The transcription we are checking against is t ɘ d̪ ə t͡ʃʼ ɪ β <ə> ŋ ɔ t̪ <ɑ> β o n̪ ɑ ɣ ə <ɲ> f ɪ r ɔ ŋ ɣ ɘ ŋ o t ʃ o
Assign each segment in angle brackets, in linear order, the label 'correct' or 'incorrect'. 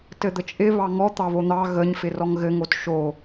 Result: incorrect: ɑ, correct, correct

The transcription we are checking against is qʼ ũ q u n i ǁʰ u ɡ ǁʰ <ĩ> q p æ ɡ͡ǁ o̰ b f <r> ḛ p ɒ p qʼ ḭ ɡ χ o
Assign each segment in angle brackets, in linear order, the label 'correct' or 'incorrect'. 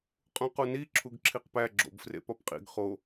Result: incorrect: i, correct

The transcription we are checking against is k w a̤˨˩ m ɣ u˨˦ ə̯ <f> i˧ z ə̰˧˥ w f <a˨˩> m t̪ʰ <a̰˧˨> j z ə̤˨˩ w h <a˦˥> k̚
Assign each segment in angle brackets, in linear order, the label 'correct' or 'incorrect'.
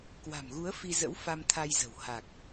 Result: correct, incorrect: a˧, incorrect: a˧, incorrect: a˨˩

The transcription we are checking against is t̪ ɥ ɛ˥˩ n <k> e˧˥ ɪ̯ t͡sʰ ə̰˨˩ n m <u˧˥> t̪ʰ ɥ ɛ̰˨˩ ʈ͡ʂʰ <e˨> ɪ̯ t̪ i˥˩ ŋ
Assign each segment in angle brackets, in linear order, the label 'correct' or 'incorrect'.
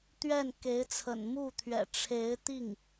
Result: correct, incorrect: u˥˩, incorrect: e˧˥

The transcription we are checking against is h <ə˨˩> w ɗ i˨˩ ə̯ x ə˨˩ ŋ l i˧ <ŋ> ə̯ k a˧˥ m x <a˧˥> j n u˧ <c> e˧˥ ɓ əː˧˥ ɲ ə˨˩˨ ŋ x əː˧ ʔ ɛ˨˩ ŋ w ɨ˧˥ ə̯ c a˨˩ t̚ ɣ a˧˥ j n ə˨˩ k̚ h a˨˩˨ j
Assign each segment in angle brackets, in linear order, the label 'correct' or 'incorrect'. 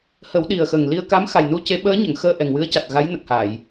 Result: incorrect: ə˨˩˦, incorrect: none, incorrect: a˨˩, correct

